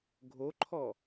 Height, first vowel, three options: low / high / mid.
mid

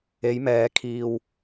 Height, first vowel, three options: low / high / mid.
mid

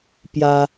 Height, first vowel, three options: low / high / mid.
low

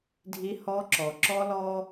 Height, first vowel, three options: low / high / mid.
high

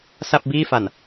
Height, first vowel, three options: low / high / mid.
low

